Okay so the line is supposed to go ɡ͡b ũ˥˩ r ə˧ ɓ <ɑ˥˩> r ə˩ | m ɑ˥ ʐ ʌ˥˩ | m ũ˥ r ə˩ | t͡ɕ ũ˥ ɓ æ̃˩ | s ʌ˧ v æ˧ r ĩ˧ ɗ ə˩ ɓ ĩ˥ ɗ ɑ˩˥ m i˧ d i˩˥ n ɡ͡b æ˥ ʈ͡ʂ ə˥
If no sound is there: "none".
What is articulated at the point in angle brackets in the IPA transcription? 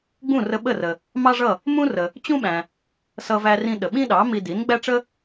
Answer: ə˥˩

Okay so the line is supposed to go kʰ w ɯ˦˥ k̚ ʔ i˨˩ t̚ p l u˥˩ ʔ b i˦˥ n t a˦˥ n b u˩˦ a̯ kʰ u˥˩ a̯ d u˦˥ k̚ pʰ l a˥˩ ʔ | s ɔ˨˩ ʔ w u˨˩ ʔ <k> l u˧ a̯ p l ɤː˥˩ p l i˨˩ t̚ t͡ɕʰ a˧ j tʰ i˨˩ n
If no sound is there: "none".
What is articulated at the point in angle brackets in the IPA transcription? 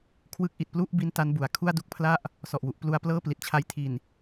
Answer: p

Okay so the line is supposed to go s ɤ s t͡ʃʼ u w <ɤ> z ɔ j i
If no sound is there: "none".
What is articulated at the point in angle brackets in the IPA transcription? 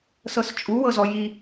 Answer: ɤ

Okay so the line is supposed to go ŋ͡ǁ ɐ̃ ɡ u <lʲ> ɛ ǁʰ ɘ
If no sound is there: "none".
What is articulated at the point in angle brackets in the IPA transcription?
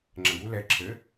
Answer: l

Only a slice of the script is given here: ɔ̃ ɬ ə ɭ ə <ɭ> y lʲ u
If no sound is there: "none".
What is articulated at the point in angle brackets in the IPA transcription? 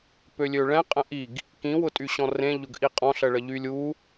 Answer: ʎ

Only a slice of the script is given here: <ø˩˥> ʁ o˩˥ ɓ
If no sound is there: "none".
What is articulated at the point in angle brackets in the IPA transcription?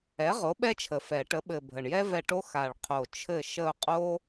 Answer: ɛ˩˥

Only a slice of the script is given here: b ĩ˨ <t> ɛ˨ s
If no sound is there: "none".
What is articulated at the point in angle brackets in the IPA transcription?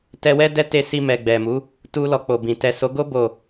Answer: t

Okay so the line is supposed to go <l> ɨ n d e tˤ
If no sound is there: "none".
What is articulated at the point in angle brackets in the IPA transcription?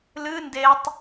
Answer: l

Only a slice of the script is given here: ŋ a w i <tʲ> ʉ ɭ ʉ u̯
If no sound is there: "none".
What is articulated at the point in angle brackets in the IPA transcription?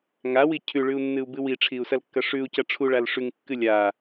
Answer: cʰ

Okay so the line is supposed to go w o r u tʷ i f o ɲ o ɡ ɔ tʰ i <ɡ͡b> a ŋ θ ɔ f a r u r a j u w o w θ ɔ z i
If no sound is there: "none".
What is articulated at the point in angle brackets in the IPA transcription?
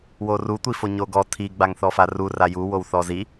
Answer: ɡ͡b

